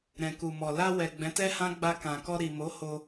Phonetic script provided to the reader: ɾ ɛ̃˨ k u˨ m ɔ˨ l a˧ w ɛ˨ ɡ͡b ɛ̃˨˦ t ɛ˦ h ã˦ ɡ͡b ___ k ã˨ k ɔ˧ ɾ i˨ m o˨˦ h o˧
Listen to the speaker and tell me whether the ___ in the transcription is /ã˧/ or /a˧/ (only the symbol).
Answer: a˧